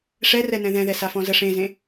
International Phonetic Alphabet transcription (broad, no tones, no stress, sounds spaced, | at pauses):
ʂ ɛ r ɛ n ɛ̃ ð ɛ̃ ð ɛ s a f ɔ̃ z ə ʂ ẽ z ẽ